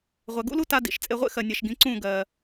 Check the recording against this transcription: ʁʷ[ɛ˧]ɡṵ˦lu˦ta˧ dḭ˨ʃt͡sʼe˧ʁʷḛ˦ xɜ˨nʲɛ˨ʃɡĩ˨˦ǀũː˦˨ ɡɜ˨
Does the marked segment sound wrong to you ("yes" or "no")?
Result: yes